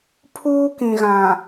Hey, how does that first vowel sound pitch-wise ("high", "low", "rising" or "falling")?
high